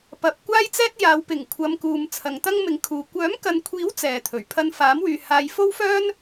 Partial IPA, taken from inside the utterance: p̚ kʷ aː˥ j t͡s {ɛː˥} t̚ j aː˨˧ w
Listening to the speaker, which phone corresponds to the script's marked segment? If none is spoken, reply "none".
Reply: ɛː˥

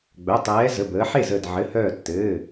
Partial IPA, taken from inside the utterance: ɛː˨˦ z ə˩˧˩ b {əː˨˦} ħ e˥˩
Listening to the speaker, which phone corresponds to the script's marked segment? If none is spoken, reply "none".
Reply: əː˨˦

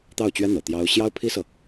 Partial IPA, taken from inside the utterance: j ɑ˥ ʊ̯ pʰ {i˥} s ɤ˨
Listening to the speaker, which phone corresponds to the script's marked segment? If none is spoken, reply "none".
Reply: i˥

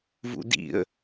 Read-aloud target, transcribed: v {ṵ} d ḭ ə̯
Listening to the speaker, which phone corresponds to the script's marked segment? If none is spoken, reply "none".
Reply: ṵ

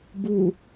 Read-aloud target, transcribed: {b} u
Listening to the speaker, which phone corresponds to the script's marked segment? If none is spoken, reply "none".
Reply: b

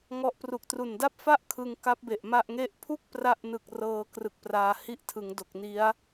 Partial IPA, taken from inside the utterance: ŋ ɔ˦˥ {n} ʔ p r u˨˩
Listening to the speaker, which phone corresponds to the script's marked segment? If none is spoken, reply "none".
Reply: none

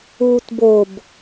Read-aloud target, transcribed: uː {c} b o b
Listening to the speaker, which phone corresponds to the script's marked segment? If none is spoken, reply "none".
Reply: t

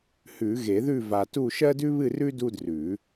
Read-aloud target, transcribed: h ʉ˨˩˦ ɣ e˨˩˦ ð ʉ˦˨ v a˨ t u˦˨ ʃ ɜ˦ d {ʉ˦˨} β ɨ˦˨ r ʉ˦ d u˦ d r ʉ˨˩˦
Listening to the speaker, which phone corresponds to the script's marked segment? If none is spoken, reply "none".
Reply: ʉ˦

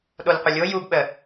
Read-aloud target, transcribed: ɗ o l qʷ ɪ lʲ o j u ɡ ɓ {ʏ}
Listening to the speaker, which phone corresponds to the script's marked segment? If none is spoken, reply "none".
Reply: ə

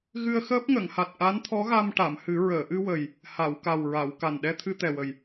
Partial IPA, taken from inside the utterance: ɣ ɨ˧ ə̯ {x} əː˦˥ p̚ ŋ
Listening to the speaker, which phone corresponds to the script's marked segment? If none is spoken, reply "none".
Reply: x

